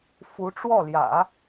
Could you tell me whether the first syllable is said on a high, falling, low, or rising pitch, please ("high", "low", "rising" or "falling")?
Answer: rising